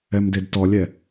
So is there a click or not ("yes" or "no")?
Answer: no